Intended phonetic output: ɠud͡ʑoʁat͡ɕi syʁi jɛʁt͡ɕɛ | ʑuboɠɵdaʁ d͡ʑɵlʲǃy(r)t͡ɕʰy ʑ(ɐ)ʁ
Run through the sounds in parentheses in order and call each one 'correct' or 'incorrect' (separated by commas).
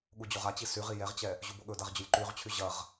incorrect, correct